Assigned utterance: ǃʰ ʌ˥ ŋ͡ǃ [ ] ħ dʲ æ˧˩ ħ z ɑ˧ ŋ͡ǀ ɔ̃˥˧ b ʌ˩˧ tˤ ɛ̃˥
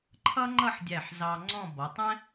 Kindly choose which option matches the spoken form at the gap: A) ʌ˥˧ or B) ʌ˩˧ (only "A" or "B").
A